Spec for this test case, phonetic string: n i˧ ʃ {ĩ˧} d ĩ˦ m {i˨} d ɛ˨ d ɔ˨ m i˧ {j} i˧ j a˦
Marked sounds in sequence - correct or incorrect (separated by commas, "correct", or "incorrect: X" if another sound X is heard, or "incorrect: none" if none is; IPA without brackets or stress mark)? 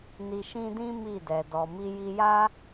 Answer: incorrect: ĩ˦, incorrect: i˦˨, correct